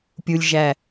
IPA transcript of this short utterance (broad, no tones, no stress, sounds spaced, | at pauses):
pʲ u lʲ ʒ æ